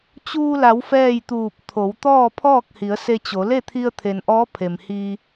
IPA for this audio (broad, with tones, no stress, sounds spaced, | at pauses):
t͡ɕ uː˧ l a˩˧ w f ɛː˥˨ j t̪ uː˧˩ p̚ t̪ʰ o˩˧ w t̪ ɔː˥˨ pʰ ɔː˥˨ k̚ h i˩˧ ə̯ s e˧ t͡ɕ o˩˧ l e˥˨ t̪ʰ i˧ ə̯ t̪ʰ e˩ n ʔ ɔː˧˥ pʰ e˩ m h iː˧